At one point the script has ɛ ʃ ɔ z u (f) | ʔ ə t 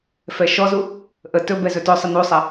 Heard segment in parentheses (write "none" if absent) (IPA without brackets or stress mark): none